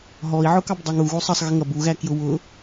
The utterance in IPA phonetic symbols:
ɦ ɔ i̯ ʕ ʊ k ɑ b dˤ ɑ ŋ u ɣ u sˤ ʌ sˤ ɣ ɪ ŋ ʌ b u ɣ æ k j ʊ w ʊ

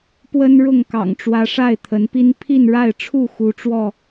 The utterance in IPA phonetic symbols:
p w ə˦ n ɻ ʊ˥˨ ŋ k ɑ̰˨˩ ŋ ʈ͡ʂ w ä˨˦ ʂ a˥˨ ɪ̯ t̪ʰ ə˨˦ n p i˦ n pʰ i˥˨ n ɻ a˥˨ ɪ̯ ʈ͡ʂʰ u˥˨ x u˨˦ ʈ͡ʂ w ɔ˥˨

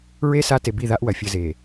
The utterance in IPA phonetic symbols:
ɹ e˦ s a˦ t e˨ b i˦˨ ð a˦ ʔ w ɐ˨ fʲ ɘ˦ z e˨

